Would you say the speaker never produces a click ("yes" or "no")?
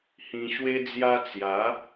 yes